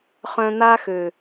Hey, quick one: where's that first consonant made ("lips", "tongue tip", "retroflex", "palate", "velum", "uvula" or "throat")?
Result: uvula